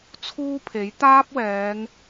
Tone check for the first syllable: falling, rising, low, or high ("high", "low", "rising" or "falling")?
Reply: high